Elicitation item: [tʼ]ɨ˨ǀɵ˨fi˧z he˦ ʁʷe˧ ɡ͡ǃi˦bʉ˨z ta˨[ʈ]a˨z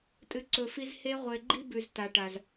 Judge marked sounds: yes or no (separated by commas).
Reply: yes, yes